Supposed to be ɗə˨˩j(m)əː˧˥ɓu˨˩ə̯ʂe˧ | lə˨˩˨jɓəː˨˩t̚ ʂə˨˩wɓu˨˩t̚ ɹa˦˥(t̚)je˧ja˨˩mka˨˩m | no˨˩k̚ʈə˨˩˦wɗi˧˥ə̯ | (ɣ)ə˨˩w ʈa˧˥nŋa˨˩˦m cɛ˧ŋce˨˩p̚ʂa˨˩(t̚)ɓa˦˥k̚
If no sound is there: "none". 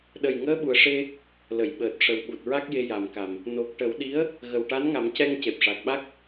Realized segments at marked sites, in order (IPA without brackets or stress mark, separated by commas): ŋ, k̚, ɣ, k̚